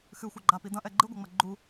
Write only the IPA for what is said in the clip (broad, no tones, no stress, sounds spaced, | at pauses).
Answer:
x ɨ xʷ ɐ ɡ͡ǃ a p i d ɐ̃ ʔ ɛ ɡ͡ǃ ɨ ɡʷ ɐ ŋ͡m ɐ ɡ͡ǃ u